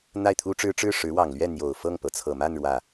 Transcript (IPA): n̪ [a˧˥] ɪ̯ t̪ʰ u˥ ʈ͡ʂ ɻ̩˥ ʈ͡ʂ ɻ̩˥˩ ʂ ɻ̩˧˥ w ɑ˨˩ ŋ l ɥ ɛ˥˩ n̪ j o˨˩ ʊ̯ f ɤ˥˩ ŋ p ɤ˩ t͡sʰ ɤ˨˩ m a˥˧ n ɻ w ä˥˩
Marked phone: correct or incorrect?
incorrect: a˥˩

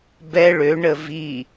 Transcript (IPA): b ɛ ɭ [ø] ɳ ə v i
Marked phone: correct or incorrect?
correct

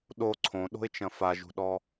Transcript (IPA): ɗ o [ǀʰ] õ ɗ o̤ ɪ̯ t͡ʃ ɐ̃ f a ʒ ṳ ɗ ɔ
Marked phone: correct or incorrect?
correct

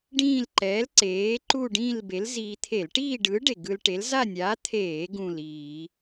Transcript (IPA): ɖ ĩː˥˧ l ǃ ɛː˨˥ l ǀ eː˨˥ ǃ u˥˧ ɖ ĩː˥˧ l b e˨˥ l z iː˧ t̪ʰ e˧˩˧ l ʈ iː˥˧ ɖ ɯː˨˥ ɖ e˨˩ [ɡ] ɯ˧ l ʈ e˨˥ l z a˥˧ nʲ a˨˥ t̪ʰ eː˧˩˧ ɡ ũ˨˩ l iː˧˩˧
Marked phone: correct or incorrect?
correct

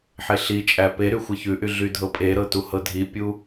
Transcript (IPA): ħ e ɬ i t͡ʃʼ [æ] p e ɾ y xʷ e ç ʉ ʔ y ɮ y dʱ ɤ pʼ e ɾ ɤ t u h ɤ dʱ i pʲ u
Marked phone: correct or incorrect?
correct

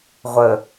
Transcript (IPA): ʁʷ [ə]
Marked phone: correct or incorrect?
correct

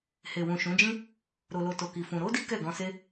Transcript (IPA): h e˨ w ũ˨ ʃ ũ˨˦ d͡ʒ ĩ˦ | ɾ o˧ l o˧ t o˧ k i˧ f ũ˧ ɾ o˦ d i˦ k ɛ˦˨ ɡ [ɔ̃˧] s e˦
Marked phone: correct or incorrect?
correct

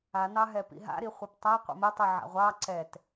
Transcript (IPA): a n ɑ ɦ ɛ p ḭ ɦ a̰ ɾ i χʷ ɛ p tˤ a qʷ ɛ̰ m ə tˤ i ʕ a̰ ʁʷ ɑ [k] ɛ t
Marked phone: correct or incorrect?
incorrect: ǀ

